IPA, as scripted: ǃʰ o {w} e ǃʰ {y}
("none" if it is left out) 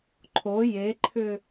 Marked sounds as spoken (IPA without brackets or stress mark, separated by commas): j, ʏ